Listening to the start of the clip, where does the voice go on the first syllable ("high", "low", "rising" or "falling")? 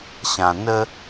low